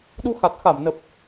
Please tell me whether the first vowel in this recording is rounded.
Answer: yes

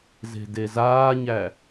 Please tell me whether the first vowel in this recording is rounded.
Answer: no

